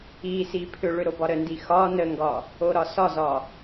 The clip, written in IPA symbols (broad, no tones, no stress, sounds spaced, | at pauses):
i s i pʰ ʏ ɭ ʏ ɾ o b ɒ ɾ ə n d i x ɒ n ə ŋ ɡ ɒ | o ɾ ɒ s ɒ z ɒ